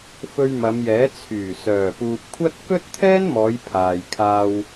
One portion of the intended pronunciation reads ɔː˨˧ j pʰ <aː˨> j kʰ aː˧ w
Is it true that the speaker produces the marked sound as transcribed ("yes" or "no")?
yes